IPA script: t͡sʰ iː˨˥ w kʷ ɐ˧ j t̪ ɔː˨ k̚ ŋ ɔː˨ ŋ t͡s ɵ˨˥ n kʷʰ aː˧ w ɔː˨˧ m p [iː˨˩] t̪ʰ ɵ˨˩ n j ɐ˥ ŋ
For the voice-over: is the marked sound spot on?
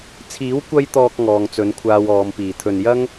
yes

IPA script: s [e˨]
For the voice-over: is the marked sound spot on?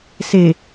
yes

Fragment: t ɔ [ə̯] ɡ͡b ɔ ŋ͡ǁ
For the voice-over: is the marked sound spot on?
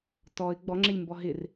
no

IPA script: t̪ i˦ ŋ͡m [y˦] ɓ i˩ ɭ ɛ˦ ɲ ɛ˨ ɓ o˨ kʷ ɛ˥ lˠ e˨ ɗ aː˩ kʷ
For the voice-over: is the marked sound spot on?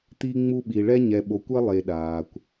no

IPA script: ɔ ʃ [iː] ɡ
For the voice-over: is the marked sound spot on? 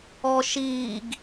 yes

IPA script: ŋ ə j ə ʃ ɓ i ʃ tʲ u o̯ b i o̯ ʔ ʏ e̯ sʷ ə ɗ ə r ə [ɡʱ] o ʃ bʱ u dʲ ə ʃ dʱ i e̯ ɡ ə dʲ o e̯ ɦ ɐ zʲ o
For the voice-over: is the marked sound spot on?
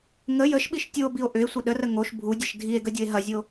no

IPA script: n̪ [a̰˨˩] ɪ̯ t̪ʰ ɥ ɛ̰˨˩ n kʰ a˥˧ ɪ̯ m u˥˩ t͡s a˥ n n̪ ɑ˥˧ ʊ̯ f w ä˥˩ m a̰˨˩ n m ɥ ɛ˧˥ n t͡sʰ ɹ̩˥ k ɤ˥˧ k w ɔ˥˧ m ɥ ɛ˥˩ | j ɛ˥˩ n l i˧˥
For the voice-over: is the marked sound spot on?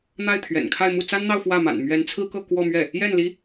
no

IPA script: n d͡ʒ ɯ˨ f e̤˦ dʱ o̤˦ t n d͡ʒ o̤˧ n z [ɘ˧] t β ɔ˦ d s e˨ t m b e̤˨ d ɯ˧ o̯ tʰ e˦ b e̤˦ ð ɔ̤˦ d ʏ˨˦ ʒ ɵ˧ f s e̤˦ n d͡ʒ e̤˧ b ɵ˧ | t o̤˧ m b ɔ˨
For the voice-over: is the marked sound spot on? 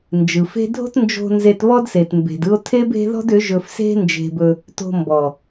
no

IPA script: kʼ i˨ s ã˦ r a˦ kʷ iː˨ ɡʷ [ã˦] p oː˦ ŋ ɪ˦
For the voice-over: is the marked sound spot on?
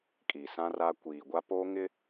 no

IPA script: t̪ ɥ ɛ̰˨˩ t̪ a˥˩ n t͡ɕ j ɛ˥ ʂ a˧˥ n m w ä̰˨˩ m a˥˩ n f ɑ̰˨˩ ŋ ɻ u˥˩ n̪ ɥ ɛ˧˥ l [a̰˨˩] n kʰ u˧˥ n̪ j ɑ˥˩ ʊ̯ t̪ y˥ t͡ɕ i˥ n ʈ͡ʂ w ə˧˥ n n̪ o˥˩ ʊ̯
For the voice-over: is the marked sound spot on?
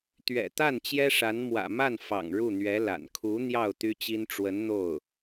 yes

